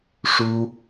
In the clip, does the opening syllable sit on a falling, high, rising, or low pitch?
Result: high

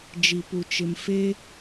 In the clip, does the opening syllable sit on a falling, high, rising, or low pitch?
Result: low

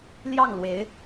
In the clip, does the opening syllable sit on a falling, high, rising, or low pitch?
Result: falling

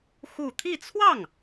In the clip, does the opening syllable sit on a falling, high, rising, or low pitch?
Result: falling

